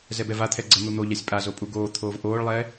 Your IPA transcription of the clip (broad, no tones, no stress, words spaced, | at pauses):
zɛbɛvat̪ʰɛ ɡ͡ǀə n̪un̪oʎasʲ pʼazo pʼuɡoːt̪ʰoːv ʔoːɭlˠɛː